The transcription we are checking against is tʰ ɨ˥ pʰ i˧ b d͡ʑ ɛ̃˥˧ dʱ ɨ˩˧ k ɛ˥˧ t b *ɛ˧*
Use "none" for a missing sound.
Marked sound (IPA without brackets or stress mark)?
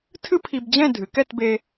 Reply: e˧